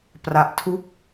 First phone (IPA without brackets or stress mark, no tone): p